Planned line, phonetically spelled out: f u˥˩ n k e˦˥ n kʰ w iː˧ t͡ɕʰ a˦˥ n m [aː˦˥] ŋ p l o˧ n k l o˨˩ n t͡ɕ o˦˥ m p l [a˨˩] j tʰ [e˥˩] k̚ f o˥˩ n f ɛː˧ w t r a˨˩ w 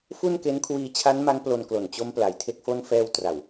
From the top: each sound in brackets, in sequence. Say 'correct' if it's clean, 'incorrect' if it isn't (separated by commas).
incorrect, correct, correct